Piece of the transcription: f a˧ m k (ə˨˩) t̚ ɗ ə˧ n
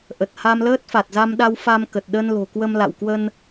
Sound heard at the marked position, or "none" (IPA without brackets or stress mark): ə˨˩